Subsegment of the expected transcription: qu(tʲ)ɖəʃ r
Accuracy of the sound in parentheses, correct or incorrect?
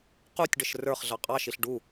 correct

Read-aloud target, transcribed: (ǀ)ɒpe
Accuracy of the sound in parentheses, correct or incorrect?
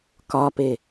incorrect: k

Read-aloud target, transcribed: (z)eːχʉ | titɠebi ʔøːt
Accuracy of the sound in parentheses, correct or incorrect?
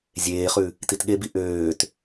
incorrect: zʲ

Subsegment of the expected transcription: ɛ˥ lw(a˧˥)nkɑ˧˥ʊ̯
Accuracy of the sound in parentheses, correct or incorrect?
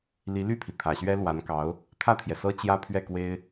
correct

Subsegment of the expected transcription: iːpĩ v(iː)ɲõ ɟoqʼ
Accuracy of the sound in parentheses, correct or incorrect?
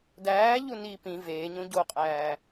incorrect: eː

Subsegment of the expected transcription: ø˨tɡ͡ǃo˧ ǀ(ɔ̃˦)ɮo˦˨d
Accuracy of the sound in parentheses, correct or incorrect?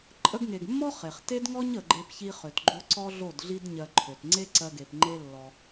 incorrect: ɔ˦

